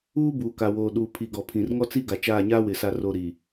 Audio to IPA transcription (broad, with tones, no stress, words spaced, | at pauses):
uː˦buː˨ ka˨woː˨ ɗuː˨pʰi˨ɡɔ˨ pʰĩ˨rŋɔ˦t͡si˦ ɡa˨t͡ʃaː˦˨ɲaː˦wɪ˨ sa˨ro˨ ɾi˨